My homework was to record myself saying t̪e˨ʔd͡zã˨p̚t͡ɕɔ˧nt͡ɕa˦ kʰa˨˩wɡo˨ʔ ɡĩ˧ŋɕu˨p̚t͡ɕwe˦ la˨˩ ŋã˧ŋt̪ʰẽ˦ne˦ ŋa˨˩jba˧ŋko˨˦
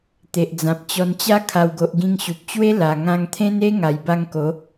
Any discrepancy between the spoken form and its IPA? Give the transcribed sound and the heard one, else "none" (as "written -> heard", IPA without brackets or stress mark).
none